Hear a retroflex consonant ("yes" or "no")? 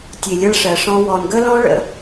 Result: yes